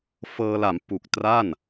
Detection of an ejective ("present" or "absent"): absent